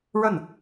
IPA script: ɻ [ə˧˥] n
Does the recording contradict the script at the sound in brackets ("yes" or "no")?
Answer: yes